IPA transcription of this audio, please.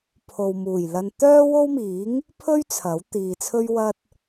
pʰ o˨ w m uː˨˩ j l ɐ˧ n t̪ œː˥ w o˥ w m iː˨˥ ŋ | pʰ ɵ˥ ɥ t͡sʰ ɐ˨˥ w t̪ iː˨ t͡sʰ ɵ˥ ɥ w ɐ˥ t̚

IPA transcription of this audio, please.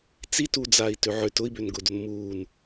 t͡s i t u d͡z aː i̯ t ø ʕ ø t ʊ i̯ b ø n ɡ ʊ d o n m uː n

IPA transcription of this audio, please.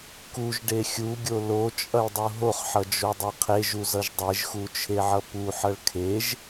k u ʒ ɖ e xʲ u ɡʲ o l o t͡ʃʼ ʌ ɭ dˤ u ɦ o χ ħ ʌ d͡ʒ o dˤ e qʰ e ʒ u z ʌ ʒ dˤ e ʒ x u t͡ʃʰ e ʕ ʌ p u ħ ʌ ɭ kʰ e ʒ

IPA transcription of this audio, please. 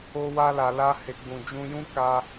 o˧ w a˧ l a˨ l a˧ h e˨ ɡ͡b ũ˨ d͡ʒ ũ˧ j ũ˦ k a˧

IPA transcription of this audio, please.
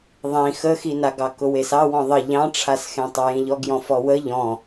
ðˤ ĩ x ə x i n a ɡ ɑ k ʊ w e s ɑ w ɔ̃ ðˤ ə ʎ ɑ̃ ʈ͡ʂʰ a s x ẽ tˤ ɐ j ĩ ʎ ɔ ɡ j ɔ̃ f ɔ w ə ʎ ɔ̃

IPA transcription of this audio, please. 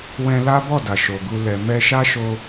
w ɛ̃˧ l a˦ b ɔ˦˨ d a˨ ʃ o˨ ɡ u˧ l ɛ˨ m ɛ˧ ʃ a˦ ʃ o˧

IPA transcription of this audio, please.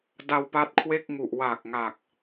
d a˧ w p a˦˥ t̚ kʰ w e˥˩ k̚ ŋ u˨˩ ʔ w a˨˩ k̚ ŋ a˨˩ k̚

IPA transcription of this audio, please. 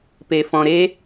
p e˨ f ɔ̃˨ ɾ e˧

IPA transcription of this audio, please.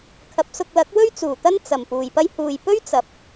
kʰ ɐ˨˥ p̚ s ʊ˧ k̚ l ɐ˨˥ k̚ w ɵ˥ ɥ t͡s uː˨˩ t̪ ɐ˥ n t͡s ɐ˨˩ m p uː˨ j p ɐ˥ j h uː˨ j p ɵ˥ ɥ t͡s ɐ˨˥ p̚

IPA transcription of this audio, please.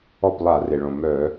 ɔ˥˩ p lˠ a˧˩˧ r e˩ ɭ õ˩ m œ˧˩˧

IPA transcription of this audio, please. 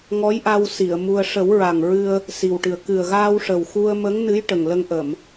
ŋ ɔ˧˥ j ʔ a˧ w s i˨˩˨ ə̯ m u˧ ə̯ ʂ ə˨˩˦ w ɹ a˨˩ ŋ ɹ ɨ˧ ə̯ | s i˨˩ w ʈ ɨ˨˩ ə̯ k ɨ˨˩ ə̯ ɣ aː˧ w ʂ ə˨˩ w x u˧ ə̯ m ə˧˥ ŋ n ɨ˧˥ j ʈ ə˨˩ ŋ l ə˧ ŋ ʔ ə˨˩˨ m

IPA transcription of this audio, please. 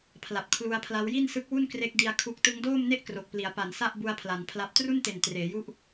pʰ l a˨˩ p̚ kʰ l u˦˥ a̯ pʰ l a˦˥ w j i˥˩ n s ɯ˦˥ k̚ w u˥˩ n k r e˦˥ k̚ d i˧ a̯ kʰ u˦˥ k̚ t ɯ˦˥ ŋ d oː˥˩ m n e˥˩ ʔ k r o˨˩ k̚ p l i˩˦ a̯ p a˩˦ n s a˥˩ ʔ b u˧ a̯ pʰ l a˩˦ n pʰ l a˦˥ p̚ t r u˥˩ n t e˨˩ n t r eː˩˦ j u˥˩ ʔ

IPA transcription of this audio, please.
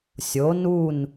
sʲ o˩˥ n u˥˩ n

